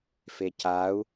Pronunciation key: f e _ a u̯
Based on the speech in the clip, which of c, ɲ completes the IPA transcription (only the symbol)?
c